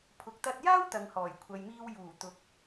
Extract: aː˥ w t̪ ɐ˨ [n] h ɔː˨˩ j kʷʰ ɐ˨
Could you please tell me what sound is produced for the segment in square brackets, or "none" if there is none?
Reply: ŋ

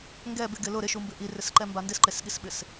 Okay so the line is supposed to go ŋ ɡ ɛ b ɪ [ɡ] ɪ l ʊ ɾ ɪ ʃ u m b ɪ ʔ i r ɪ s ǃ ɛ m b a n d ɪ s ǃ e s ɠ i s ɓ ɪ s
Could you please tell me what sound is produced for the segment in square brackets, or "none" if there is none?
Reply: ɡ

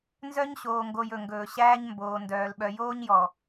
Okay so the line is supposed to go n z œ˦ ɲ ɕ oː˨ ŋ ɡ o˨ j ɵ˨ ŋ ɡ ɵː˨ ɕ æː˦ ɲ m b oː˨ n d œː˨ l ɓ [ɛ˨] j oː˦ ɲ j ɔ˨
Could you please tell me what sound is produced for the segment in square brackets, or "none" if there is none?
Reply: œ˨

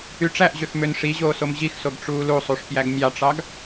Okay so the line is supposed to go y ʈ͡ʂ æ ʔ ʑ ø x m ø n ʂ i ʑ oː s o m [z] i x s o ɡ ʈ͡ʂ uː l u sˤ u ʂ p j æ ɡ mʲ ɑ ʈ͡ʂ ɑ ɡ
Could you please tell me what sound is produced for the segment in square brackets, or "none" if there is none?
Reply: ʑ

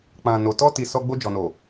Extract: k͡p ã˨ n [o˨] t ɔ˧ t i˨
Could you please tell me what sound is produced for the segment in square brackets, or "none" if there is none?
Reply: o˨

